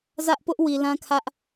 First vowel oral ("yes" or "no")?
yes